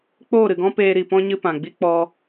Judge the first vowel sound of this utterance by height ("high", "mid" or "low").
mid